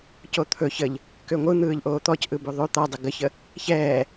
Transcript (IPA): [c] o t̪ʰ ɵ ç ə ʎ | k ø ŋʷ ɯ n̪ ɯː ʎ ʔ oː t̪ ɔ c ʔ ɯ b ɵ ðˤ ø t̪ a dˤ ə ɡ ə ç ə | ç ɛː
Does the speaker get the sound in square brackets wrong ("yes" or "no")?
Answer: no